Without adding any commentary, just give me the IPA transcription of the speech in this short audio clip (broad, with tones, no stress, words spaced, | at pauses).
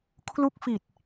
kʰlu˦˥k̚ fi˨˩t̚